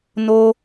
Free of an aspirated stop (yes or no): yes